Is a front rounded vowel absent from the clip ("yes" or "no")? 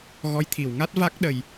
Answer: yes